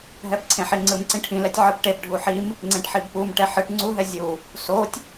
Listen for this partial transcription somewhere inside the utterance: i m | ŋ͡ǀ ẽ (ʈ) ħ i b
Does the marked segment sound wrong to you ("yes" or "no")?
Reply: no